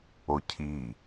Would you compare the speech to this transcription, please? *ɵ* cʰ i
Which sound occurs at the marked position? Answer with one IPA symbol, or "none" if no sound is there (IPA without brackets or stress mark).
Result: o